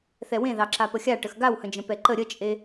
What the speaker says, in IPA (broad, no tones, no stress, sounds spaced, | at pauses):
θ ɛ w ẽ ð ɑ ǁ a p ə xʲ a ʈ ə x ɡ a w h ə̃ d͡ʒ ə̃ p ɛ ǃ ə ɾʲ ə t͡ʃʼ e